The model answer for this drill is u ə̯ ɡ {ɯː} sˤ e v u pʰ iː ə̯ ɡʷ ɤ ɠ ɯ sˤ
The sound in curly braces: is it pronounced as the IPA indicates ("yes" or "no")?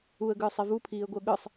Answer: yes